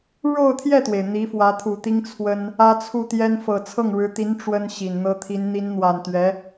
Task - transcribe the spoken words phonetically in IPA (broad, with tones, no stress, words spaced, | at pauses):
ɻo˥˧ʊ̯t̪ʰjɛ˥˩t̪we˩ɪ̯ n̪i˧˥fwä˧˥t̪ʰu˨˩t̪i˥ŋ t͡sʰwə˥n | ä˥t͡sʰu˥˩t̪jɛ˥n fɤ˨˩t͡sʰɤ˥˩ŋɻɻ̩˧˥t̪i˧˥n ʈ͡ʂwə˥n ɕi˨˩nn̪ɤ˥ t̪ʰi˧˥n n̪i˧˥nn̪wa˨˩n t̪ɥɛ˧˥